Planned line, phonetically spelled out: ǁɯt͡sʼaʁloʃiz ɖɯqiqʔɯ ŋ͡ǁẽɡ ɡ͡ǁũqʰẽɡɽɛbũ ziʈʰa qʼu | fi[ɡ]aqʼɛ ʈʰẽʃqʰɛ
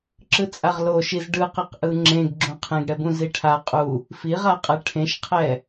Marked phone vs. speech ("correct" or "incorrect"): incorrect